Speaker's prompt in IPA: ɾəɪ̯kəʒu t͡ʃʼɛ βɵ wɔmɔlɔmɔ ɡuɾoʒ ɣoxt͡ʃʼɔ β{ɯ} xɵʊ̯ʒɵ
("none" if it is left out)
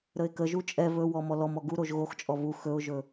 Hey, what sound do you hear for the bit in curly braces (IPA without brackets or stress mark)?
u